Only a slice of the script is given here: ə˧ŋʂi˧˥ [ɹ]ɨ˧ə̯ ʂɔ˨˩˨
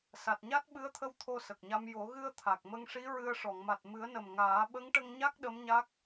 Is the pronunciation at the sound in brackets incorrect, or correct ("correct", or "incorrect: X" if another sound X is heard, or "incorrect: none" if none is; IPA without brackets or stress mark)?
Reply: correct